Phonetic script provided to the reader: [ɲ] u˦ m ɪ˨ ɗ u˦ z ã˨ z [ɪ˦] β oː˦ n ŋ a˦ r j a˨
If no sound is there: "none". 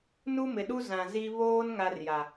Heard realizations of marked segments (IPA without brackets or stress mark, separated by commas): n, i˦